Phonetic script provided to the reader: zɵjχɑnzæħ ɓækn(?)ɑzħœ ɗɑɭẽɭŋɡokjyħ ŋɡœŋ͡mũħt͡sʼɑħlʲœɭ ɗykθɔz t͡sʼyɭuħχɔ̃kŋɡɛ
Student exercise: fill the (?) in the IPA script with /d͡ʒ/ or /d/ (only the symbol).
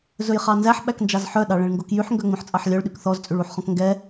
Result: d͡ʒ